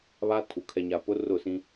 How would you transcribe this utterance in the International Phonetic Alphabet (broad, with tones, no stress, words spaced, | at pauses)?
βa˦tʰu˨ kʰɛ˨ɲa˨ pʊ˦rʊ˦˨sĩ˦